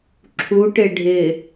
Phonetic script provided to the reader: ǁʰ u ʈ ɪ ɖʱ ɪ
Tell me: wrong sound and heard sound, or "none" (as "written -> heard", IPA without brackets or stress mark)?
none